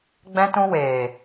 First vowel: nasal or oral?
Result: nasal